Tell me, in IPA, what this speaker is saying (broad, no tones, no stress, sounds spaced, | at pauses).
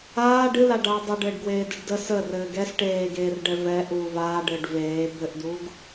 aː ɖ ɨ l a ɖ aː dˤ ə ɖ ɘː ɖ ɡ w eː d ɨ ɖ d ə s ə r ɘː ɡ ɛ s ʈ eː ɡ eː r ɖ ɛ v ɛ ʔ uː v aː ɖ ɘː ɖ v eː b ɘ ʔ d uː ɡ